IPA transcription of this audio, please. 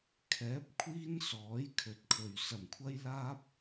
kʰ ɛː˨˥ p̚ kʷʰ iː˥ n s ɔː˨˥ j kʰ ɵ˨ t̚ kʰ ɵ˨ ɥ s ɐ˨ m kʷʰ ɐ˥ j l aː˥ p̚

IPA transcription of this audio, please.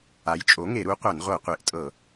a˩˥ j t͡ʃʼ o˩˥ ŋ e˧˩˧ ɾ u˩˥ qʷ a˧˩˧ n ʁʷ ɤ˧˩˧ qʷ e˩˥ ʔ tʼ ɤ˧˩˧

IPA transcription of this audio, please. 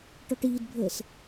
ʈ ɔ ʈ iː d bʱ əː s

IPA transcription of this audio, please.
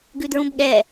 ɡ ʉ d ɹ ũ b ɠ ɛ

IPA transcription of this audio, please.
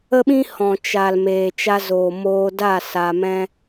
ə˦ ɓ ĩ˦ h ɔ̃˨ t͡ʃ a˨ l m eː˨ t͡ʃ a˧ z oː˨ m oː˧ d a˦˨ s a˧ m ɛ̃˦

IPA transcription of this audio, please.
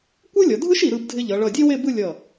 kʷ ɯ˥ lʲ ʌ˩˧ dʱ ɯ˥ ʃ i˩˧ ɾ ɯ˧ b dʱ ɪ˧ ʎ ʌ˩˧ ɭ ʌ˧˩ dʲ e˥ w e˥˧ b ɯ˥˧ lʲ ʌ˧˩

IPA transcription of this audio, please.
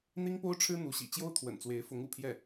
n̪ i˥ ŋ p o˥ ʊ̯ ʈ͡ʂʰ ɻ̩˥ n̪ u˧˥ ɕ ḭ˨˩ t͡ɕ j o˥ ʊ̯ t̪ʰ w ə̰˨˩ n t͡s w e˧˥ ɪ̯ f ʊ˧˥ ŋ ṵ˨˩ pʰ j ɛ˥˩

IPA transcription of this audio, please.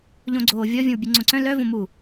ʎ õ ɡ͡ǀ oː vʲ ɔ vʲ õ w bʲ e ŋ͡ǀ õ ǀ œ̃ l œ v õ m uː

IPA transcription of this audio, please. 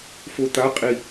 f o t̪ a qʼ i

